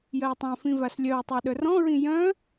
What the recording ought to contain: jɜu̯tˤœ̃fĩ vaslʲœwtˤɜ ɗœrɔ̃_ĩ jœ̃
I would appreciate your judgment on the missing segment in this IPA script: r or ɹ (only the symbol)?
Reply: ɹ